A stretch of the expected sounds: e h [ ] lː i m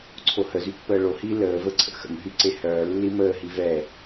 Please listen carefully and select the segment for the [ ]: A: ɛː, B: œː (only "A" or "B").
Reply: B